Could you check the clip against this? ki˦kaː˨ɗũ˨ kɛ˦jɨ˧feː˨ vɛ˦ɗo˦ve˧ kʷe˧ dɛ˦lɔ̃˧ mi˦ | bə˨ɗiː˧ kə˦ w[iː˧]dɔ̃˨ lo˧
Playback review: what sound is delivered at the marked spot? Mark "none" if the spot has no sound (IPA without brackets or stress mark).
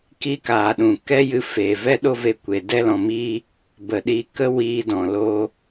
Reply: iː˧